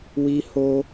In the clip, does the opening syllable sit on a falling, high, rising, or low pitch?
high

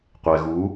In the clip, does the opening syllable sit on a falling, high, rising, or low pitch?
low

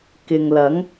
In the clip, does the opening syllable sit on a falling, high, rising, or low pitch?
low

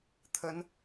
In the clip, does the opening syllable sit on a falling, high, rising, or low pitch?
high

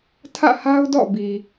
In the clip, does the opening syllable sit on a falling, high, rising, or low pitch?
falling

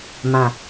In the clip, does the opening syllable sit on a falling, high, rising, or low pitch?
low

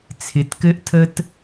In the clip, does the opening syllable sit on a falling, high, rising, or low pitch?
rising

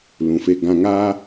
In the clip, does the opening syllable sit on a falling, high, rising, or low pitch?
low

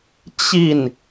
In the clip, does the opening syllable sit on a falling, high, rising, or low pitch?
falling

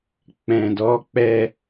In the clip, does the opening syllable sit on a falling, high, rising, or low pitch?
low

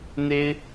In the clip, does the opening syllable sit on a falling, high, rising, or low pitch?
high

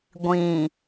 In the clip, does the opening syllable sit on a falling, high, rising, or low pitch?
low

